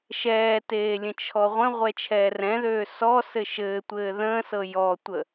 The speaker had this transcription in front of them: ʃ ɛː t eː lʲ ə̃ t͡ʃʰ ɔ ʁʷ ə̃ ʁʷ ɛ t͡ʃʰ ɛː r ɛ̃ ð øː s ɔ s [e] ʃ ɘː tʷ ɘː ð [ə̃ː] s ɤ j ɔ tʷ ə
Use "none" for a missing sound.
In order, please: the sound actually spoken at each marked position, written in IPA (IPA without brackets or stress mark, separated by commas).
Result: ɘ, ə̃ː